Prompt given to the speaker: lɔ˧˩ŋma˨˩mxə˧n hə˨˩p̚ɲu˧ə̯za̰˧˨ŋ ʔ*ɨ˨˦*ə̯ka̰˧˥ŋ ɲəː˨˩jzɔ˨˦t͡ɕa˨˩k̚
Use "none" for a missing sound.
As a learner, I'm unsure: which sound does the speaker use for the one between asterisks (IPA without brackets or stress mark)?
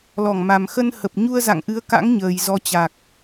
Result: ɨ˨˦